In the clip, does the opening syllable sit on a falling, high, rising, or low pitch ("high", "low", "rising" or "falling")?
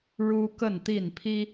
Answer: high